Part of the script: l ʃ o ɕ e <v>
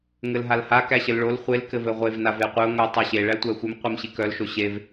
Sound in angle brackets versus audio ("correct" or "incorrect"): correct